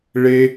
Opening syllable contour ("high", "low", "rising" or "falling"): high